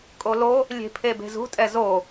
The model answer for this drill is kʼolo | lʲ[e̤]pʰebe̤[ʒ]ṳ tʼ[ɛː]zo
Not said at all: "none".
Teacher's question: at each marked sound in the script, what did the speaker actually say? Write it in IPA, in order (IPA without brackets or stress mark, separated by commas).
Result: e̤, z, ɛ